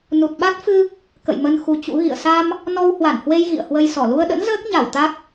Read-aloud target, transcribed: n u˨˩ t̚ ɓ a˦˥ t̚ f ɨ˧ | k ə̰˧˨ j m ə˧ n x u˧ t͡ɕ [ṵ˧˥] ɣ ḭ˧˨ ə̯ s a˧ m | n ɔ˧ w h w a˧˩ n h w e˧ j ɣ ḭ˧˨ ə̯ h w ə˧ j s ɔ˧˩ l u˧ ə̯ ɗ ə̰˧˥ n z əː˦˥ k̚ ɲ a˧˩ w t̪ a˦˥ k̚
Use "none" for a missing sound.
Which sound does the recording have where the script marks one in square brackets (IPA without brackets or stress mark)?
ṵ˧˥